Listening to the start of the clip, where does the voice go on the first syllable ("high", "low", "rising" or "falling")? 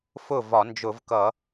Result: falling